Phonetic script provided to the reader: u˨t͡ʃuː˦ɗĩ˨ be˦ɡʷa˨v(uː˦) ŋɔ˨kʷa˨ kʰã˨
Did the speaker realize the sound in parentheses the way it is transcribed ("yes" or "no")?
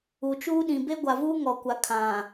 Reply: yes